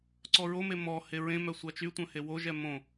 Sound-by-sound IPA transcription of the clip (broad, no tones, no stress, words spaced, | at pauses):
ǀɔɹome mɔ heɹẽmœ sʷat͡ʃytʷœ̃ hewoʒɛ mõ